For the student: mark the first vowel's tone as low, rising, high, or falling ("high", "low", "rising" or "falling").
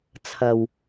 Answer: low